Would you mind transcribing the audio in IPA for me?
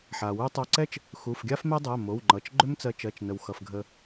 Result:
ħ a˩ w u˥ tˤ a˧ ǀ ɛ˥ t͡ʃ | x u˩˧˩ f ɡʲ a˥ f m ɛ˥ dˤ ɜ˩˧˩ m o˩˧˩ w ŋ͡ǃ ʌ˩˧˩ t͡ʃ ɡ͡ǃ ʏ˥ m t͡s ɜ˧ t͡ʃ ɜ˩˧˩ t͡ʃ n ə˩ w x ʌ˩ f ɡʱ ə˧

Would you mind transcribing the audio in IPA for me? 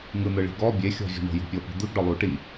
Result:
ŋ ɯ n̪ ɯ ɭ i̤ ɡ ɔ bʲ e xʲ ɔ̤ vʲ o̤ ɳ o̤ j ṳ pʲ ɤ p i̤ d̪ ɯ ɡ ɖ ɔ lˠ u ʈ i

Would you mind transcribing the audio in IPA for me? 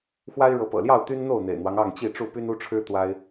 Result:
x w a˦ ɪ̯ ɻ ɤ˨˦ p ɤ̰˨˩ l j ɑ˥˨ ʊ̯ t̪ y˦ n n̪ o˥˨ ʊ̯ n̪ ḛ˨˩ ɪ̯ n̪ w ɑ˦ ŋ ɑ˥˨ ŋ t͡ɕ i˥˨ ʈ͡ʂ u˥˨ p y˦ n u˦ ʈ͡ʂʰ ɻ̩˦ t̪ w a˦ ɪ̯

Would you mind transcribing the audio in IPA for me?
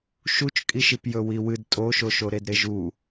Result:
ʃ u t͡ʃ kʼ i ʃ i p j ɵ w i w ɨ d tʼ o ʃ o ʃ o ɾ e d ɾ e ʒ u

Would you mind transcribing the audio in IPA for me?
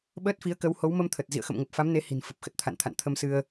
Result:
ɓ əː˦˥ t̚ f i˨˦ ə̯ k ə˨˦ w h o˨˦ w m ə˧ m t̪ʰ ə˨˩ t̚ z ḭ˧˨ ə̯ x ə̰˧˨ m ŋ ə˨˩ p̚ f a˨˦ m n e˨˦ h i̤˨˩ n f ə˨˩ p̚ x ə˨˩ t̚ t̪ʰ a̰˧˨ n t̪ʰ a̰˧˨ n t̪ʰ ə˧ m s ɨ˧ ə̯

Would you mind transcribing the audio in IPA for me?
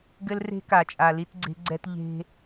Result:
ɡ ɘ˦ l r e̤˦ k a˨ t͡ʃʼ a˨ l i˦ t ɡ͡ǀ e̤˦ ɡ͡ǀ ɛ˦ t ʎ e̤˦

